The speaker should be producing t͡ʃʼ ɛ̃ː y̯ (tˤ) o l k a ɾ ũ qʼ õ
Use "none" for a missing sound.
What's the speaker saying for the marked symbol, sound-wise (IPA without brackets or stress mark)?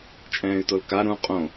t